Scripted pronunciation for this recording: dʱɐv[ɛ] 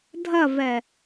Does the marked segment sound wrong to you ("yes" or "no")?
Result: no